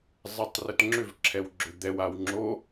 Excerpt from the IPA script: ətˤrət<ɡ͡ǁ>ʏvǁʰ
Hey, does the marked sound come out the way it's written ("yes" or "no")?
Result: no